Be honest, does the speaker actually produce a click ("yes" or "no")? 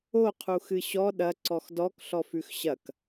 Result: yes